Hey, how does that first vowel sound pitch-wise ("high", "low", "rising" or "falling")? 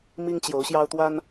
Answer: high